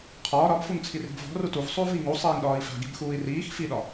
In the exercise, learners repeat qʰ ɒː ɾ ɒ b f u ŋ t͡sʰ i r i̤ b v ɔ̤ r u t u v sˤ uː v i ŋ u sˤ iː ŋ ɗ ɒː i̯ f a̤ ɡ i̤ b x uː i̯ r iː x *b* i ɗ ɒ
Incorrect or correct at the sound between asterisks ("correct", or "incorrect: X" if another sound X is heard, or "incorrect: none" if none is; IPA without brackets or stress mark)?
incorrect: f